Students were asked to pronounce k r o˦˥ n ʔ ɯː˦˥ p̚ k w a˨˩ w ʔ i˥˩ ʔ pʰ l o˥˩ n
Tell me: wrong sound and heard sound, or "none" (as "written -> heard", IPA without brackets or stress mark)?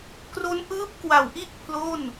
none